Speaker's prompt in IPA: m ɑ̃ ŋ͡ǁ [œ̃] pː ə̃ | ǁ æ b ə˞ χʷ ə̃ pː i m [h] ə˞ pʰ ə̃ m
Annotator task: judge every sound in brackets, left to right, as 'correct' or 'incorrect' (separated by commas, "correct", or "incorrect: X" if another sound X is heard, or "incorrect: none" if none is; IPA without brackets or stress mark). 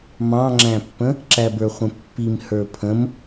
incorrect: æ̃, correct